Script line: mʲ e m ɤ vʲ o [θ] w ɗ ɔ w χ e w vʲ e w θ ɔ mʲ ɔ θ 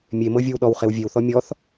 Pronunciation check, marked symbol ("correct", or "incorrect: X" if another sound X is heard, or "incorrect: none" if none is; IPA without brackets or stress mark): incorrect: none